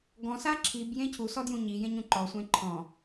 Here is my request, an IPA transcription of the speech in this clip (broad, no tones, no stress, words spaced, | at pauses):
ɡɔ̃sa ǁʰibjẽ cʰusɔdjũ ɲijẽɲũ ǃɔsʷẽ ǃʰɔ̃